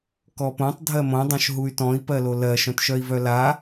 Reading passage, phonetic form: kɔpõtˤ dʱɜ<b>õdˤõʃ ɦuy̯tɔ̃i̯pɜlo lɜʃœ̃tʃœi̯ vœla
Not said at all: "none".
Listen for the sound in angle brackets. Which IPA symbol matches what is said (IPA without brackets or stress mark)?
m